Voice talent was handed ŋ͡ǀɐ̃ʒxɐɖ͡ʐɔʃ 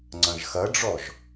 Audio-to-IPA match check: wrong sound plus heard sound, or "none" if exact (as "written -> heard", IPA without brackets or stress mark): ʃ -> ʒ